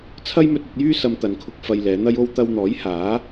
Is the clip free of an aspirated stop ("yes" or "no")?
no